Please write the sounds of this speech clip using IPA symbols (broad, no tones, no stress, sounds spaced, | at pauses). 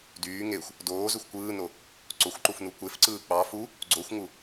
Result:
d yː ŋ e xʷ | d oː z ø xʷ kʷ ɯː n o | ǀ o xʷ ǃ u f n u kʷ e f ǀ ɯː k͡p ɑ f u | ɡ͡ǀ o xʷ ŋ u